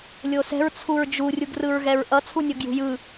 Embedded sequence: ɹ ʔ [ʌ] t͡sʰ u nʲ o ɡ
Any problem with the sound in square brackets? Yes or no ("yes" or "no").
no